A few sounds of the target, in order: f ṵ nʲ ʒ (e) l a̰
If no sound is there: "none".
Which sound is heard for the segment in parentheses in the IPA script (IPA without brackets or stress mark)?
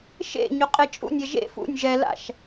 ɛ